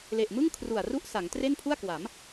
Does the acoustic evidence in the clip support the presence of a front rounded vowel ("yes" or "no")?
no